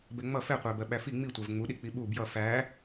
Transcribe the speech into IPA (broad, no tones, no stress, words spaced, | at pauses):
bɛŋ͡mʌ fɛqʷæbɜ ɓæfi ŋ͡mitʷæv ŋ͡muɗik͡pi ɓu bjʌ fæ